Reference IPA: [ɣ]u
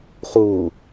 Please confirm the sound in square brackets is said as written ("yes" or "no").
no